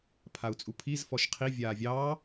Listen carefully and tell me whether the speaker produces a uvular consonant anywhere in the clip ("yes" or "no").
yes